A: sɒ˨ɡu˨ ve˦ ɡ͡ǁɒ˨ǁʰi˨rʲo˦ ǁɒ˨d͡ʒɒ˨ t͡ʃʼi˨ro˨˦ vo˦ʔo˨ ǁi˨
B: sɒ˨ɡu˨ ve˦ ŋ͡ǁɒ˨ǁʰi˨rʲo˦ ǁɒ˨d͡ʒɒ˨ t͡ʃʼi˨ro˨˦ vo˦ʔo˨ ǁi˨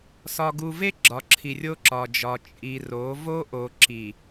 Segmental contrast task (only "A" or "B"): A